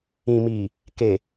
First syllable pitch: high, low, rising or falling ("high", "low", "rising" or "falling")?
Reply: low